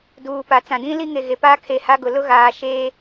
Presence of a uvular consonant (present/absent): absent